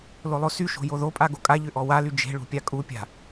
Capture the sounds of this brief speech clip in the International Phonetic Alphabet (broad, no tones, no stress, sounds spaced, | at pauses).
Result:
l o lˠ o s y ʃ o̤ j o ð o pʼ a ɡ o kʼ a ʎ ʏ ʔ ɔ w a l y d͡ʒ e̤ ɭ ṳ pʲ a kʼ u pʲ a̤